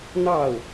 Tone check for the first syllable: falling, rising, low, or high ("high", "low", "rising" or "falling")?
falling